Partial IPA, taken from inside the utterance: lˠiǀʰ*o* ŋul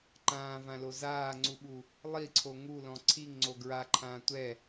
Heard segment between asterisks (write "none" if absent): o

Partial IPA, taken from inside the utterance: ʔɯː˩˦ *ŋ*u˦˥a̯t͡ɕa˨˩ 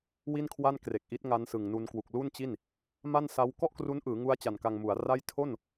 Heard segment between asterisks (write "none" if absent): ŋ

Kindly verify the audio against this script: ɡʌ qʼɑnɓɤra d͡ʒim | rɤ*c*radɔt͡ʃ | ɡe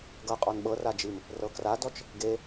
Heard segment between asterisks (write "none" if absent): k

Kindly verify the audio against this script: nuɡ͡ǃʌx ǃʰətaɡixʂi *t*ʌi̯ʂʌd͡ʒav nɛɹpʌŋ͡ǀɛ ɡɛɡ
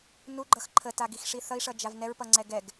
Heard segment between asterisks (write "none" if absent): θ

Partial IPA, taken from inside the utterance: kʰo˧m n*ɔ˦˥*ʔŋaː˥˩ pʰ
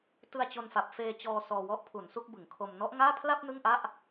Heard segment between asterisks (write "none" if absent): ɔ˦˥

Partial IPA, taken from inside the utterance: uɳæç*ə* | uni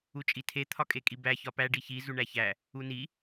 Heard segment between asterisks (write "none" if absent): æ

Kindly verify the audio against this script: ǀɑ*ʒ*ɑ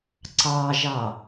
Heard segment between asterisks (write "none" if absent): ʒ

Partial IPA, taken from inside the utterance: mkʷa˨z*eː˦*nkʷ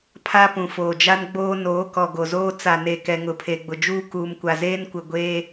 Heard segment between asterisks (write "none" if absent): eː˦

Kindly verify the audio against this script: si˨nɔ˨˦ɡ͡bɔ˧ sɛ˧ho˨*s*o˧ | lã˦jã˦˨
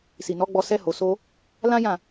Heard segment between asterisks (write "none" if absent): s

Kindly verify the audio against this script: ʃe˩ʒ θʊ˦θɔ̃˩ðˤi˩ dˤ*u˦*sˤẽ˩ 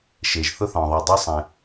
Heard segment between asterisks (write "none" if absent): u˥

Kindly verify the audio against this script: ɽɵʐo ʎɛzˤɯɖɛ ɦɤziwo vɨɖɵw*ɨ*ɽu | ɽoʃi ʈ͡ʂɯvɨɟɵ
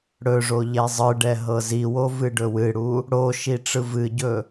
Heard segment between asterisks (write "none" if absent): ɨ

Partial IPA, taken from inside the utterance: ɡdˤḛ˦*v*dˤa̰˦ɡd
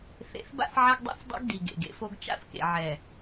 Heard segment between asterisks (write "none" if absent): θ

